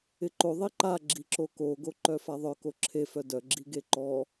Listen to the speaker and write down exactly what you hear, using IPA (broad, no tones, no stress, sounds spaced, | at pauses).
ɪ ǃ o ðˤ i ǃ a ɡ͡ǁ i ǁ o k o ɡ o ǃ œ f a ðˤ œ k o ǁʰ e f œ d œ ɡ͡ǁ i ɡ e ǃ ɔ